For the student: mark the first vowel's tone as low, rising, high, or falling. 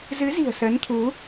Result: rising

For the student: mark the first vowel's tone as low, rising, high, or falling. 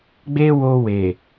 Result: high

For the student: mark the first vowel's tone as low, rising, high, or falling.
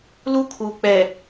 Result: high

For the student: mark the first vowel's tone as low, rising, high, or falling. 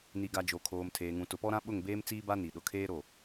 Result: low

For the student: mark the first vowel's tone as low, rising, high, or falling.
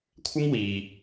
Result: high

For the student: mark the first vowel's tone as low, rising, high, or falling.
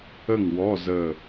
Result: falling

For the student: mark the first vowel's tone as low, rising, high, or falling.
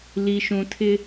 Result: low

